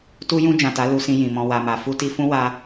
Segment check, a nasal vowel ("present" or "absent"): present